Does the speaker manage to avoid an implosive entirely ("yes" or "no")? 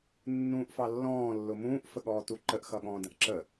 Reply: no